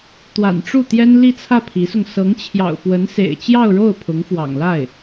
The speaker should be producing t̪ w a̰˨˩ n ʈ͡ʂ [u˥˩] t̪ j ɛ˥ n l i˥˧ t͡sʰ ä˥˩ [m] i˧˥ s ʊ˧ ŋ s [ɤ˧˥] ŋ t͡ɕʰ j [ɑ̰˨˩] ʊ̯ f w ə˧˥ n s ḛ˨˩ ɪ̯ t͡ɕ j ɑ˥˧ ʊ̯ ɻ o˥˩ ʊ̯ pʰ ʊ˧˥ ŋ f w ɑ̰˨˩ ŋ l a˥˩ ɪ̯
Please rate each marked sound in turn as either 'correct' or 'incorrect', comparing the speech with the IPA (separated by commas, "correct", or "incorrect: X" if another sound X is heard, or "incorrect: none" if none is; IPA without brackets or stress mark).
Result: correct, incorrect: pʰ, correct, correct